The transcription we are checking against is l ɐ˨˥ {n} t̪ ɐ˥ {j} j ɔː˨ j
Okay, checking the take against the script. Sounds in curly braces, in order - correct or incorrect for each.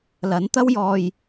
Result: correct, incorrect

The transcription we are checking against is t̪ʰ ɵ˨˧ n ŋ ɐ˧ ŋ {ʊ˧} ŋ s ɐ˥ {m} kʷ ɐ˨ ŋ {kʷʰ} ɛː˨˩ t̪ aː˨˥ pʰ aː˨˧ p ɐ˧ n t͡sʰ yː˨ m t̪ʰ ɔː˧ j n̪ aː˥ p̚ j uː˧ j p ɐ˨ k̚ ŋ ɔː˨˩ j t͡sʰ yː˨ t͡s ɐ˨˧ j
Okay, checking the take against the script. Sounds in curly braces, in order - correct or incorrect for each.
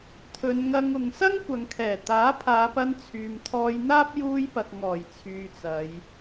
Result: incorrect, incorrect, incorrect

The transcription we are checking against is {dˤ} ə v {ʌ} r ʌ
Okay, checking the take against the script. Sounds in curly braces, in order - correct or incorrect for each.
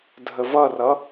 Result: incorrect, correct

